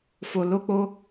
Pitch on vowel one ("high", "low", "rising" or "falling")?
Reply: low